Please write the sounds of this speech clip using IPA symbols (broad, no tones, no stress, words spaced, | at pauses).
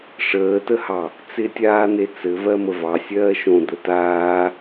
ʂəːtəhɑ | t͡sɪtʲaːn̪e t͡sɘvɜmə vɑ sʲɜːʃõ d̪ətaː